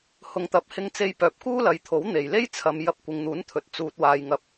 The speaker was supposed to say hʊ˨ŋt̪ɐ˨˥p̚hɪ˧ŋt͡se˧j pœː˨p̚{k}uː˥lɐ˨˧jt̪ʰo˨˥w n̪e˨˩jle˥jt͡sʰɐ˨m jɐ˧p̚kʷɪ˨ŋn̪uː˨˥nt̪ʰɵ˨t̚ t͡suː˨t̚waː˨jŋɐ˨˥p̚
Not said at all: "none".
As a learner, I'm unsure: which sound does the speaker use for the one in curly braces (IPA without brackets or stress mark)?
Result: k